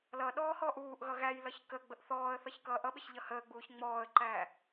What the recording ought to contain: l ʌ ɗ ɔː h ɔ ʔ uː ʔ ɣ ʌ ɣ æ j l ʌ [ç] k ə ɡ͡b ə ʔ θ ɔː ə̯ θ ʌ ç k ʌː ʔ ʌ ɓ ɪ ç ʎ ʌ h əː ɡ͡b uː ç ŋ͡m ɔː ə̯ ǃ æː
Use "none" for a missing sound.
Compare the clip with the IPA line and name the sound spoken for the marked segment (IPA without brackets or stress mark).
ç